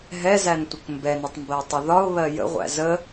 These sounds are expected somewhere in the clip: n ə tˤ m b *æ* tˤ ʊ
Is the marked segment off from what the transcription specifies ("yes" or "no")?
yes